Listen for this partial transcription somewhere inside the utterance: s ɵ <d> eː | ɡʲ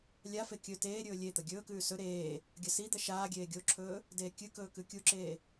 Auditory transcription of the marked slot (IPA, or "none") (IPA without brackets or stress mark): ɾ